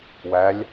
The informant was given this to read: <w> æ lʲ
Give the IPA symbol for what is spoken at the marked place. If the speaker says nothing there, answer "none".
w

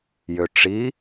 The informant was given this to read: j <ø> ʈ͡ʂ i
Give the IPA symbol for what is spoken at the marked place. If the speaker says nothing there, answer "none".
ø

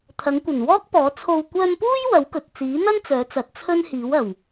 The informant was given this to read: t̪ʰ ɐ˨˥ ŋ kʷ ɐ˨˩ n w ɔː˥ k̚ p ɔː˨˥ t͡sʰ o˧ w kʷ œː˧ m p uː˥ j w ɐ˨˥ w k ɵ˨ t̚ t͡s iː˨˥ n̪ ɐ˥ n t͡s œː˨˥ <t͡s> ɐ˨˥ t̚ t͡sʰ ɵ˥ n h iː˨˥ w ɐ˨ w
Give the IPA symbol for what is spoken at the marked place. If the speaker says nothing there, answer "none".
t͡s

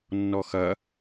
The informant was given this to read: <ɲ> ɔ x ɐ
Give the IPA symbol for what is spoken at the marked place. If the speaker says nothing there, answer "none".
nː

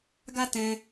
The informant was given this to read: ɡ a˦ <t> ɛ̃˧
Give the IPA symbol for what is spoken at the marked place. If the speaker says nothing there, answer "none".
t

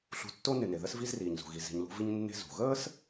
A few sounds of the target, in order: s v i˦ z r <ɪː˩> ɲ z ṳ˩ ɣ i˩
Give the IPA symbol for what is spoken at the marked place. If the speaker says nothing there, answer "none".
iː˩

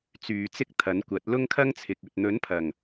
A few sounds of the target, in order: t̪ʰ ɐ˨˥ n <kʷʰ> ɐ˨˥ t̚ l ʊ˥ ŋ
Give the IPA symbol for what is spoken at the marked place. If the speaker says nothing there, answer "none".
kʷ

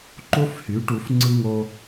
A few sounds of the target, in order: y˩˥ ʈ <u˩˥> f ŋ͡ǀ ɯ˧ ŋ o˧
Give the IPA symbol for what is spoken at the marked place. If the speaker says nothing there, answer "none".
u˩˥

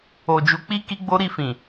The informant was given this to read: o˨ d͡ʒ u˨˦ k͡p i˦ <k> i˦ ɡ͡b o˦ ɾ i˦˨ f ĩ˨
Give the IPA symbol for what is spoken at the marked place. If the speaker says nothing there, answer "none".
k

